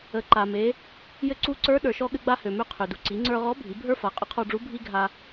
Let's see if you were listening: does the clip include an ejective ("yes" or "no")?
yes